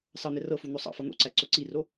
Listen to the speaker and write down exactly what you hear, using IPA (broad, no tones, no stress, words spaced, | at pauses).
sɑn̪ɛ rɤfun̪o sˤɑ̰fɤ n̪o̰ǀæǀo ǀiro